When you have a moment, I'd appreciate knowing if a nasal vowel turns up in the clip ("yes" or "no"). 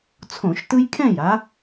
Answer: yes